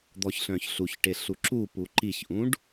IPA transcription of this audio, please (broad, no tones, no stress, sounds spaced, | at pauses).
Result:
d̪ ɔ ç ɬ œ̃ ç ɬ u ç ʈ e ɬ u ǁ u p u ǃ i ç ʔ ũ ɖ